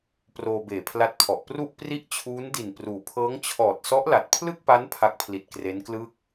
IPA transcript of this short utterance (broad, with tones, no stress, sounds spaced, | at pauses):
p r oː˧ b eː˨˩ pʰ l a˦˥ t̚ pʰ ɔ˨˩ ʔ p r u˥˩ ʔ p r i˥˩ ʔ t͡ɕʰ uː˦˥ n d i˨˩ n p r uː˩˦ pʰ ɤː˦˥ ŋ t͡ɕʰ ɔː˨˩ t̚ s ɔ˦˥ ʔ l a˨˩ t̚ pʰ l ɯ˥˩ k̚ p a˦˥ n pʰ a˦˥ k̚ pʰ l i˨˩ t̚ k r e˦˥ n k l ɯ˥˩ k̚